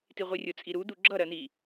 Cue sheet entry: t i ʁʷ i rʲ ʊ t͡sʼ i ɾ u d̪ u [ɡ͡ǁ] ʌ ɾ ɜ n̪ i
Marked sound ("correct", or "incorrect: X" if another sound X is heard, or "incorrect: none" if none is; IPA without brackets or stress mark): correct